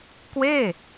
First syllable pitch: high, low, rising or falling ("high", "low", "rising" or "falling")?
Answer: falling